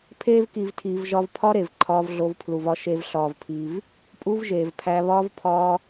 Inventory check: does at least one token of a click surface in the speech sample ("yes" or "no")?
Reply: yes